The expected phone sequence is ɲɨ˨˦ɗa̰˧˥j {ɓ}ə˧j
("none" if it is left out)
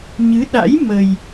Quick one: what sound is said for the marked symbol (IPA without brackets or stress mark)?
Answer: m